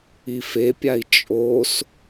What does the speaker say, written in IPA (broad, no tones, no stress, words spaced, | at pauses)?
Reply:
ifepʲai̯ t͡ʃʼos